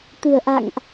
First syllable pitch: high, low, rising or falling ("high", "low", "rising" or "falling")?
low